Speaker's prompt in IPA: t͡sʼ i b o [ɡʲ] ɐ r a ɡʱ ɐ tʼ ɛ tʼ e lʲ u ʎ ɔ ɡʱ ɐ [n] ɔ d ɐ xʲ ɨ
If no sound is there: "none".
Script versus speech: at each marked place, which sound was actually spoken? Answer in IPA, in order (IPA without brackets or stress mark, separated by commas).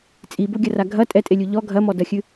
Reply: ɡʲ, m